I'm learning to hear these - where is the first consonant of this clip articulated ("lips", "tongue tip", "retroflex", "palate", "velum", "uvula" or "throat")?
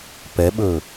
lips